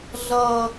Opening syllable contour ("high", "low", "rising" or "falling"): high